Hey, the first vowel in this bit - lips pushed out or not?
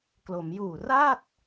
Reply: yes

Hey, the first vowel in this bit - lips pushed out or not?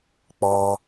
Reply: yes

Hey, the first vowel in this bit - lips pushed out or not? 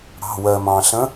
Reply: no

